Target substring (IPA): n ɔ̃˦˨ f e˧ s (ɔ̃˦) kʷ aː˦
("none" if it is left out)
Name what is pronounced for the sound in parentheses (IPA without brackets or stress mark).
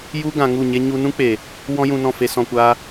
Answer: ɔ̃˧